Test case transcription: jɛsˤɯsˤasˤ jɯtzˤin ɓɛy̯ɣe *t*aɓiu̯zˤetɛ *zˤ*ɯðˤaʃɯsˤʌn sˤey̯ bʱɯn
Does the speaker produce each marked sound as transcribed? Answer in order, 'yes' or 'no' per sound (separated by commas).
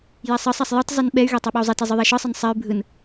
no, yes